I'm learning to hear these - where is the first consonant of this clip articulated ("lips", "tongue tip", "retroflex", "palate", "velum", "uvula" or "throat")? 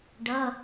retroflex